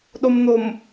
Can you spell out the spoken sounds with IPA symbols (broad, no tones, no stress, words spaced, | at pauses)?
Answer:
ɗomn̪om